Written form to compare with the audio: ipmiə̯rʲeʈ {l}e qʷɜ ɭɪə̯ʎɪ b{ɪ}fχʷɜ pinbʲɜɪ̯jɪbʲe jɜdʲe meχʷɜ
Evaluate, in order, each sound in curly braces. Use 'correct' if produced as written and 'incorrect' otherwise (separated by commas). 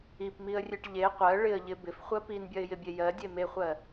incorrect, correct